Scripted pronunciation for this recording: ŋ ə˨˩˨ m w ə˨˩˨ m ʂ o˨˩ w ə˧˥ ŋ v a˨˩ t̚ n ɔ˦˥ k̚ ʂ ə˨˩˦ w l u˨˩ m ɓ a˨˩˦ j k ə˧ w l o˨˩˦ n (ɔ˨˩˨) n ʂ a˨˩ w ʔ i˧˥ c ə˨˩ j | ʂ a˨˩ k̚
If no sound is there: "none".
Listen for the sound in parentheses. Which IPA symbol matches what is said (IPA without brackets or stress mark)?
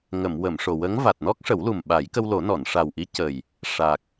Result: ɔ˨˩˨